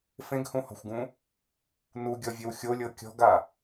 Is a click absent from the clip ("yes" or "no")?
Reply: yes